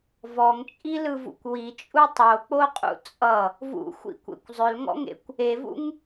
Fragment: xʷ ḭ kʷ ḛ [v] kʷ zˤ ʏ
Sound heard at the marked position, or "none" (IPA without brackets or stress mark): none